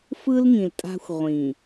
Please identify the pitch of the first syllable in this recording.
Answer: high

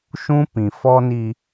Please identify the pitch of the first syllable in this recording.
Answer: high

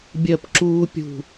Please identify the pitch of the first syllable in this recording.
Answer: falling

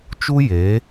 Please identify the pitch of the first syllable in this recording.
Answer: high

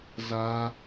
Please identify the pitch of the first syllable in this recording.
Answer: high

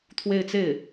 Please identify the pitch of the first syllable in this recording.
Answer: falling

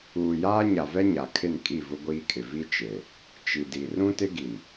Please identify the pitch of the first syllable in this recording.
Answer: low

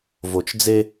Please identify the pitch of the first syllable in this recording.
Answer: low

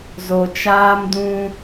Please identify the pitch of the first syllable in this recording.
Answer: low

